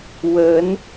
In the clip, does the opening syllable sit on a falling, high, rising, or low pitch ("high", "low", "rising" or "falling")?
rising